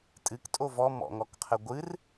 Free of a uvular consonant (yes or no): no